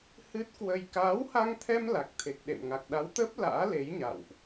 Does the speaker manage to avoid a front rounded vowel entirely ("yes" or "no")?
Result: yes